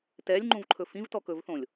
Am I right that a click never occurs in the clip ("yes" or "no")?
no